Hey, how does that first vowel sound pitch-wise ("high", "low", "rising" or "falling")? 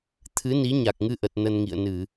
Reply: rising